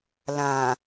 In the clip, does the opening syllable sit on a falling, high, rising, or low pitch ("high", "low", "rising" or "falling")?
low